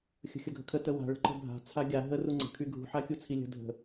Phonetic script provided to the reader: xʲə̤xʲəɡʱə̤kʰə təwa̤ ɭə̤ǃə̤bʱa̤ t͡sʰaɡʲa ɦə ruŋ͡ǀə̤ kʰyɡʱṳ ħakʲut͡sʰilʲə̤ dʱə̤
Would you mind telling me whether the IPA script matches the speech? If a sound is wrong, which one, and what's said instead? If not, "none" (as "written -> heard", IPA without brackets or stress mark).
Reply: none